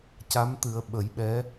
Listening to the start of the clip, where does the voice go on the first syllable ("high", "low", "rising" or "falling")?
rising